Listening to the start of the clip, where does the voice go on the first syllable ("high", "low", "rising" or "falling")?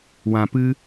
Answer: low